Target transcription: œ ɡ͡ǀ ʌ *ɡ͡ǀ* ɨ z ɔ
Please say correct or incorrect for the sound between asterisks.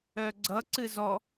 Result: incorrect: ǀ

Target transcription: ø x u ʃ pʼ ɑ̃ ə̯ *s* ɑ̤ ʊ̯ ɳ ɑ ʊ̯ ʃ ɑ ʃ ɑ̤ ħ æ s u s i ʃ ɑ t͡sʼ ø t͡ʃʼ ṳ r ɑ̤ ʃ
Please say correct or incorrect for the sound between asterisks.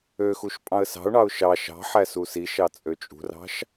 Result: correct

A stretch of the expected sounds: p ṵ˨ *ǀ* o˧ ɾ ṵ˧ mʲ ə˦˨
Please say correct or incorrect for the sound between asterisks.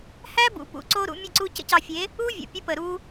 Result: correct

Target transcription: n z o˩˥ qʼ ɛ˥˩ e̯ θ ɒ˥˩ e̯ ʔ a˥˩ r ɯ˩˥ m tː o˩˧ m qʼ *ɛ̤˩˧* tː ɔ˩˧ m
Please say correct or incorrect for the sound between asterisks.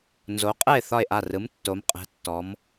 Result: correct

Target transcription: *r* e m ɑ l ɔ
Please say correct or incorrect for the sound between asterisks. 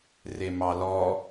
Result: correct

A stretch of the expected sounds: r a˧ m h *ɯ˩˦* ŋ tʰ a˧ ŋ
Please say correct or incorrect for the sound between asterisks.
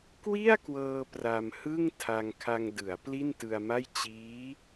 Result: incorrect: ɯ˥˩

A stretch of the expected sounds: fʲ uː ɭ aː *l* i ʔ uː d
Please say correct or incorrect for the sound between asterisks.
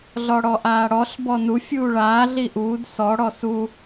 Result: incorrect: ɮ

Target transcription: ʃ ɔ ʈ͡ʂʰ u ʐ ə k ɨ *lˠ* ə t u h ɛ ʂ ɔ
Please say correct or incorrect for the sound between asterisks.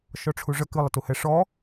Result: correct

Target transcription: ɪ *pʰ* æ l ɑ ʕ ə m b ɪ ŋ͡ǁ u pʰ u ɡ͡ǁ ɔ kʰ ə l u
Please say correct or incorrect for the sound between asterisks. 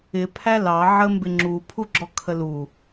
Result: correct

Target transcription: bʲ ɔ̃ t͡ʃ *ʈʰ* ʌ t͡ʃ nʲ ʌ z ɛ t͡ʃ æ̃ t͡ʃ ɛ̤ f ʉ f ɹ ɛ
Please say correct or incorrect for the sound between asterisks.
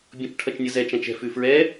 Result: correct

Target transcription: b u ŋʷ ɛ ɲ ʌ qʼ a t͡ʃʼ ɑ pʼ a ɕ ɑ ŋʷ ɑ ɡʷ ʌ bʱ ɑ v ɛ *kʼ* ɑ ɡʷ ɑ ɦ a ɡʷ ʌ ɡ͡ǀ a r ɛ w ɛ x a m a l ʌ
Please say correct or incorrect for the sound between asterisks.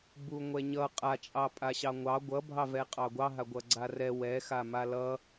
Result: incorrect: qʼ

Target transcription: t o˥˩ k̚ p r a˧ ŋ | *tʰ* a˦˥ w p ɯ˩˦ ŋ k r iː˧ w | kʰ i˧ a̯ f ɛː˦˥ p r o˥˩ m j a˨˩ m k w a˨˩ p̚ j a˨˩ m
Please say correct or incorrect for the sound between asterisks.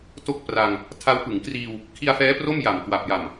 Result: correct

